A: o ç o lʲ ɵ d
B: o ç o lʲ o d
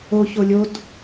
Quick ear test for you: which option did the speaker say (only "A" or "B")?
B